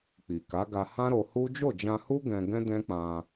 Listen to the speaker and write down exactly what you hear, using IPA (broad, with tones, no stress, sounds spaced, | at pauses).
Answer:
k͡p i˨ k a˨˦ ɡ a˧ h ã˦ ɾ o˧ h u˦ d͡ʒ o˦˨ d͡ʒ ã˧ h u˦ ɡ ɛ̃˧ ɡ ɛ̃˦ d ɛ̃˦ k͡p ã˧